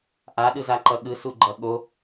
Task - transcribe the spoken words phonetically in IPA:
ʔ a ɗ ɯ z a ǃ ʌ ɠ ɯ s u ɡ͡ǃ ʌ ɠ o

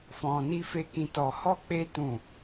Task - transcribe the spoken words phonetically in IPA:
f ɔ̃˧ n i˦ f e˦ k ĩ˧ t ɔ˧ h ɔ˦ k͡p e˦ t ũ˦˨

